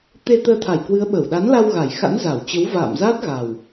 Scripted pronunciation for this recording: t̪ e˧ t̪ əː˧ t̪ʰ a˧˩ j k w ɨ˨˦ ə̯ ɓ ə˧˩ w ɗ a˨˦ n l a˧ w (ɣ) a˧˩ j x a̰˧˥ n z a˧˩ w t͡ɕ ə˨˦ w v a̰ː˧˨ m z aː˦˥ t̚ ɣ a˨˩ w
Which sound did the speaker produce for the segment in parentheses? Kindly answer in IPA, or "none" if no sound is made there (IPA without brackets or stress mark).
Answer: ɣ